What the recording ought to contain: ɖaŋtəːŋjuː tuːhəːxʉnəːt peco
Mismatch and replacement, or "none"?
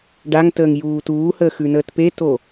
c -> t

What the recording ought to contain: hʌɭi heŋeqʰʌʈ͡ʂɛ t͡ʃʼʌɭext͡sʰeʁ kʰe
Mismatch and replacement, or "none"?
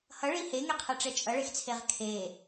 none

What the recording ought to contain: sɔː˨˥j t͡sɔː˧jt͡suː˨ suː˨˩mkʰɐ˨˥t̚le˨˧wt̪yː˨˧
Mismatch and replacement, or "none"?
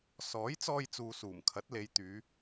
w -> j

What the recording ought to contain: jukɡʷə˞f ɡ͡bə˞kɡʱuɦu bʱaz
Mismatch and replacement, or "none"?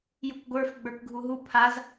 bʱ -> pʰ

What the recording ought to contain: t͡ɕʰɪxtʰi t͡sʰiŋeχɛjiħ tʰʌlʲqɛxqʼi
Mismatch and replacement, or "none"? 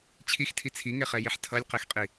ɪ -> i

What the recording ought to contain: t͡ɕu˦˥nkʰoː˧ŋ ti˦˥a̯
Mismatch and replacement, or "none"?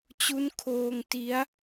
none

